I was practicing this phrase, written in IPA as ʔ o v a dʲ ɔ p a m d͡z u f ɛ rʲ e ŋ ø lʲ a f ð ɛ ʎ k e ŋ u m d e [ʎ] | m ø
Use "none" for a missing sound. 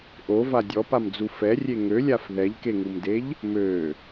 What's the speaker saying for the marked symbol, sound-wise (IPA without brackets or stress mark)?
ʎ